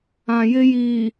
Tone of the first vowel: low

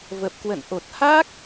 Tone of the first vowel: low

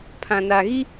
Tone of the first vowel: low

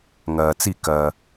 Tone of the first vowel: low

